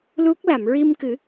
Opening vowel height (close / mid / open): close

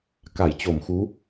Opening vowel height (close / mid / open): open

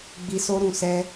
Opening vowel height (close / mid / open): close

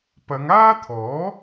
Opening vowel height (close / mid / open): open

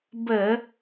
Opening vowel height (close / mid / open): mid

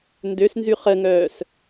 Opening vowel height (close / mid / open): mid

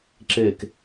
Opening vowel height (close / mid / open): mid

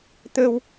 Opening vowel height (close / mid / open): mid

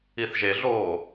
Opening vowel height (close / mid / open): close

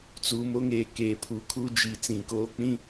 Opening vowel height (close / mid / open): close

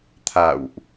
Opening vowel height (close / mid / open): open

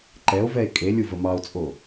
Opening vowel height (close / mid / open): mid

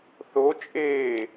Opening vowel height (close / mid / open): mid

